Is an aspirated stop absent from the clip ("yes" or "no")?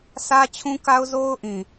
no